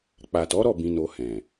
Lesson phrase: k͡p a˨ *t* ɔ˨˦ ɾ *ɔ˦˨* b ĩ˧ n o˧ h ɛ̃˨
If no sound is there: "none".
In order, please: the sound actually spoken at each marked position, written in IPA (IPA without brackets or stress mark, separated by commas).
t, ɔ˦˨